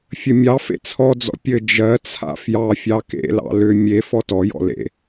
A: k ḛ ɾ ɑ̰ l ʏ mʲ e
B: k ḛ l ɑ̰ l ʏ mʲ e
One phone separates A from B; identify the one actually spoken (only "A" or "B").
B